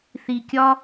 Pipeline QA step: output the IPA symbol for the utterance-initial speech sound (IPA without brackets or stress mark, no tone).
θ